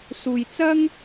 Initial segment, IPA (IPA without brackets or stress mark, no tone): s